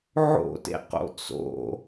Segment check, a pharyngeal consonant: present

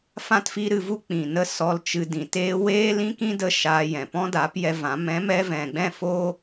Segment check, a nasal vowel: present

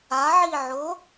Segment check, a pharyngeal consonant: present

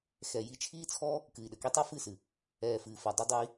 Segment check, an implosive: present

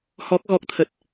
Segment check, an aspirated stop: present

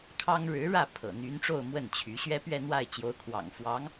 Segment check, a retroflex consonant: present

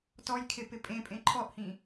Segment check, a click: present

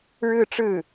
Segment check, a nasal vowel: absent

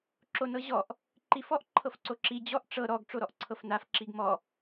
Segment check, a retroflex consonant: present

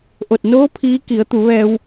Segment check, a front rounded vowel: absent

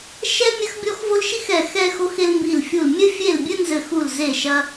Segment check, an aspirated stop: absent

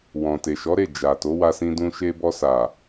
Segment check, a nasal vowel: present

